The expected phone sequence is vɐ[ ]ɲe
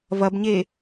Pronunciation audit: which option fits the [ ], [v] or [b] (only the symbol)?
b